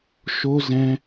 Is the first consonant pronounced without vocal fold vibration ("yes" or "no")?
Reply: yes